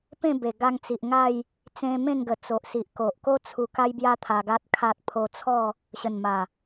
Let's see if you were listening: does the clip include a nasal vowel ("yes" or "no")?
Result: yes